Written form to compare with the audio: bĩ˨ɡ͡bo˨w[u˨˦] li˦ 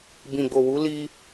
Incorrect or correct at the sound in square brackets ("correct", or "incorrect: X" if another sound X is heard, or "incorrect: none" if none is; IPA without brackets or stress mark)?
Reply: correct